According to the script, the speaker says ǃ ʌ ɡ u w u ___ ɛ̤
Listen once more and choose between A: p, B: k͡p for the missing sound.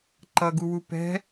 A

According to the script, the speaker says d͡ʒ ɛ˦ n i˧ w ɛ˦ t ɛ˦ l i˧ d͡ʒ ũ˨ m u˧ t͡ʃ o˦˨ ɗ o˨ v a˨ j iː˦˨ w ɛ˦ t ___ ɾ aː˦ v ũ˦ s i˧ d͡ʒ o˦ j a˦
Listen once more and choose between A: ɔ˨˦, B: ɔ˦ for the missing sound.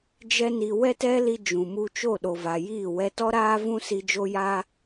B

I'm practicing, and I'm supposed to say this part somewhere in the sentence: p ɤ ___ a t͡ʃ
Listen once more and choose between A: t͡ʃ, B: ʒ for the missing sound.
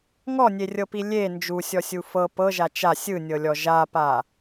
B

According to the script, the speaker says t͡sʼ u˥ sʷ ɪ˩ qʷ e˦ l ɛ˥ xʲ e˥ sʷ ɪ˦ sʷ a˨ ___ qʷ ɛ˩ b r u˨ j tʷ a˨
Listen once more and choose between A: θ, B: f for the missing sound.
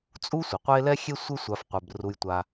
B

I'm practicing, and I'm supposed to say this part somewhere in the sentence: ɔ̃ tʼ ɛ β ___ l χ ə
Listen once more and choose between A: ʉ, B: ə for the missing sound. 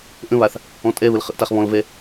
B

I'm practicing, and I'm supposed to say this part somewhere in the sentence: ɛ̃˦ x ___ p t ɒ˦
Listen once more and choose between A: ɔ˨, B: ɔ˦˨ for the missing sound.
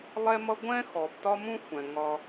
A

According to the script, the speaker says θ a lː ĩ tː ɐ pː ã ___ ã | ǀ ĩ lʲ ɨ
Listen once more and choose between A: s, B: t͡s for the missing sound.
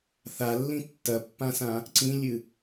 A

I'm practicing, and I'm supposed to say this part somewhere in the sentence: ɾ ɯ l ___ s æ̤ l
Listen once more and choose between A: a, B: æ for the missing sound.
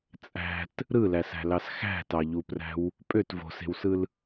B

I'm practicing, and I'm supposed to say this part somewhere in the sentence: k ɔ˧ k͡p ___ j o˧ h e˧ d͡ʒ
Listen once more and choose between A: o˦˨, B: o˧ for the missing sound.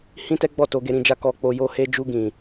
B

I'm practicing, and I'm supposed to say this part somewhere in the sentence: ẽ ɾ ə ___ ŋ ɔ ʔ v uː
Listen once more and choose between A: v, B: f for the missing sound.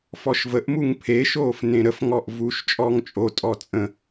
B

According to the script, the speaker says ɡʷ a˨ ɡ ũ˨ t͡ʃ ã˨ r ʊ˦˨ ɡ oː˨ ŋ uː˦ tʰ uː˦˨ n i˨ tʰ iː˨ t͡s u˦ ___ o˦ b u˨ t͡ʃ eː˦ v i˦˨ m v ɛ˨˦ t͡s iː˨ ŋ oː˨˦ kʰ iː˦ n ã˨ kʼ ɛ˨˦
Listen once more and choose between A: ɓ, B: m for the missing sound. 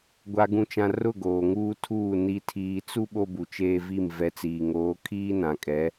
A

